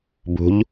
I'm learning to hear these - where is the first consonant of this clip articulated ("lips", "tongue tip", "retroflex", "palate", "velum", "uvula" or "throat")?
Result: lips